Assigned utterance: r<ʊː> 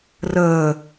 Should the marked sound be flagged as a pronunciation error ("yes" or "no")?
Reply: yes